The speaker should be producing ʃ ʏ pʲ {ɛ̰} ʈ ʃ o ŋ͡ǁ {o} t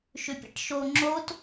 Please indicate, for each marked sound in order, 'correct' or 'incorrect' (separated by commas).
correct, correct